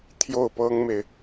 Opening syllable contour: falling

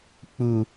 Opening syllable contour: high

